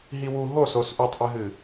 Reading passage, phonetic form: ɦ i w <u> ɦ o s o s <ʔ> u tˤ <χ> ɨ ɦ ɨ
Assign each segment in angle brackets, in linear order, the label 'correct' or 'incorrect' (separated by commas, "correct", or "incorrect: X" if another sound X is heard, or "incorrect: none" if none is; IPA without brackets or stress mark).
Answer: correct, correct, incorrect: ʔ